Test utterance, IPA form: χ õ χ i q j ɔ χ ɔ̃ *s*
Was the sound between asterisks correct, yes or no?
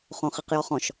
no